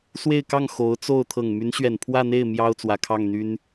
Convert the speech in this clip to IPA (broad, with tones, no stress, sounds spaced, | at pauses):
s w e˥˧ ɪ̯ k ɑ˥˩ ŋ x o˧˥ ʊ̯ t͡s o˥˩ ʊ̯ t̪ʰ ɤ˨˩ ŋ m y˧˥ n ɕ ɥ ɛ˨˩ n pʰ w ä˥˧ n̪ e˥˩ ɪ̯ m j ɑ˥ ʊ̯ t͡s w ä˨˩ kʰ ɑ˥˩ ŋ n̪ y˥ n